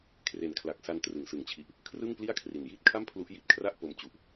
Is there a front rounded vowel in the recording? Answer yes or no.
no